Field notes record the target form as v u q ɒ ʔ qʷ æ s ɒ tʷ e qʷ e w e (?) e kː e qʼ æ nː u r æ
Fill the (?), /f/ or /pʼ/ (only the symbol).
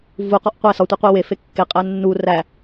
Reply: f